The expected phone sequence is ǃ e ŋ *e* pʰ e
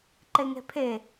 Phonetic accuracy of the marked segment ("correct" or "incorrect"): incorrect